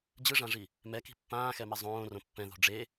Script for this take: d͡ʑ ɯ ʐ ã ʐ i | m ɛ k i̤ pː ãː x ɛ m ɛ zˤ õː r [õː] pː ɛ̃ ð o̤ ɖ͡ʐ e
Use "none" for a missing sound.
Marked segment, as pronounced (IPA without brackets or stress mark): õ